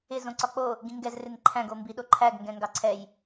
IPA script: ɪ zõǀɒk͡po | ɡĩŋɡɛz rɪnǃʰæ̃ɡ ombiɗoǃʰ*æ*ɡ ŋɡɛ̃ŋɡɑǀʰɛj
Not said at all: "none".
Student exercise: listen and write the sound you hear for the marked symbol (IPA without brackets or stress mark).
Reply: æ